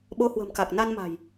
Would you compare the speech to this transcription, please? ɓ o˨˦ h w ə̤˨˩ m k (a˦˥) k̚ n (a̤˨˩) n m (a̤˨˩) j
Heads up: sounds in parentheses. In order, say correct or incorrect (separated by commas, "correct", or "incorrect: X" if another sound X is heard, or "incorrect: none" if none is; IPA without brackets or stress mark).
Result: incorrect: a˨˩, incorrect: a˧, correct